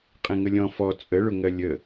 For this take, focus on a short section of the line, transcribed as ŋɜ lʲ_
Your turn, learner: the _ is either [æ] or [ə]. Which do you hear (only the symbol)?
ə